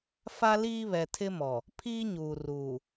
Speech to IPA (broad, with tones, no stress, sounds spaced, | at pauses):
f a˦ l iː˦ β ɛ˨ tʰ ɪ˦ m ɔ˨ | pʰ iː˦ ɲ uː˨ r uː˨